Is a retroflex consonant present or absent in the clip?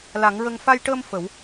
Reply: present